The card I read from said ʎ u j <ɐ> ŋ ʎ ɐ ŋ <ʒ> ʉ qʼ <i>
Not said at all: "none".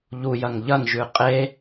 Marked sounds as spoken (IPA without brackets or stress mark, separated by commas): ɐ, ʒ, e